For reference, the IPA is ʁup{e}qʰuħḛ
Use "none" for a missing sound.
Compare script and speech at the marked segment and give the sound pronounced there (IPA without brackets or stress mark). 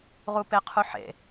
e